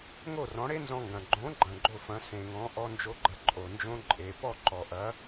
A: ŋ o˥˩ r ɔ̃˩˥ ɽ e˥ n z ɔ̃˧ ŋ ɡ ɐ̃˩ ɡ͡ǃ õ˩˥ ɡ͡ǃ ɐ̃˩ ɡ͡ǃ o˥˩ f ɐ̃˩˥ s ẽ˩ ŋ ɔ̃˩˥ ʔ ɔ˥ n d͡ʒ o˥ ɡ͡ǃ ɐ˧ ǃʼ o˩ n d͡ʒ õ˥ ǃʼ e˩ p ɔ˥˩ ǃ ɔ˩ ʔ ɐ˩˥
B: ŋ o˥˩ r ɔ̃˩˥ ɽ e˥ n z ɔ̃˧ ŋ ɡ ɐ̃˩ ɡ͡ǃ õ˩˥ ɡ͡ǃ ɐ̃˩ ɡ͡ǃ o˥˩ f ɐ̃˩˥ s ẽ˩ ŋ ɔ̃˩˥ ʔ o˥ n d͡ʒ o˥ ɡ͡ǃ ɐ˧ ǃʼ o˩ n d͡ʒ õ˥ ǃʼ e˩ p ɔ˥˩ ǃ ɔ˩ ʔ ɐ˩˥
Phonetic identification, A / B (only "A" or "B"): A